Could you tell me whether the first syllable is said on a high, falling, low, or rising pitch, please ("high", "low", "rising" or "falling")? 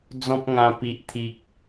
high